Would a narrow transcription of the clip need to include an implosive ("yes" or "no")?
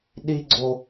yes